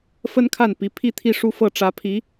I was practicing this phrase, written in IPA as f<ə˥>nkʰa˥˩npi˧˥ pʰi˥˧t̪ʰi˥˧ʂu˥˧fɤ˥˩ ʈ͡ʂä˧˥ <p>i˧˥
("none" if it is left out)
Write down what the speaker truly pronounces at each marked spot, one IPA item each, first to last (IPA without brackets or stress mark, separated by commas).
ə˥, pʰ